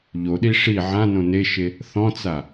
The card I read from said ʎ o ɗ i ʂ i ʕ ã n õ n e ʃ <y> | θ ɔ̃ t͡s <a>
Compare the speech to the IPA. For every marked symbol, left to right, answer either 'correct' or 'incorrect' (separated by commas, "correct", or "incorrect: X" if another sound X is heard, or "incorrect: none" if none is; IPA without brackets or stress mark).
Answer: incorrect: e, correct